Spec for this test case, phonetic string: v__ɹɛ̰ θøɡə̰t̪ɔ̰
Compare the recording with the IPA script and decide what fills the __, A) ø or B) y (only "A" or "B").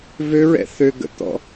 A